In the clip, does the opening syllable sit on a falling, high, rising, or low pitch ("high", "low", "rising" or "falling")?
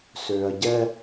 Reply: low